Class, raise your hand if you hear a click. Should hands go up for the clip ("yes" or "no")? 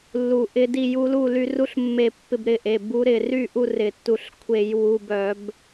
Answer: no